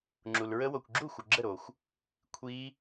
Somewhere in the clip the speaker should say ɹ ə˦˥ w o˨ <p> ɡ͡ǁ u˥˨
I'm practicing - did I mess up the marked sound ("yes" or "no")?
yes